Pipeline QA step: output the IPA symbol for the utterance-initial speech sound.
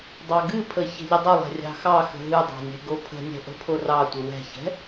dˤ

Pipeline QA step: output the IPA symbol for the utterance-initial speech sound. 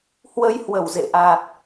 h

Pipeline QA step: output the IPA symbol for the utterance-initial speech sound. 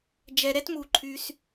d͡ʒ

